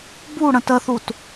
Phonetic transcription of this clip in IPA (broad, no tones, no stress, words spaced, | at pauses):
bu ɽə̃təθut